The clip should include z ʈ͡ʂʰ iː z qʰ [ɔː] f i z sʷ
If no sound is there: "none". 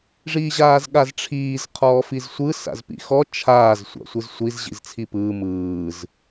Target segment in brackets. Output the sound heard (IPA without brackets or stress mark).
ɔː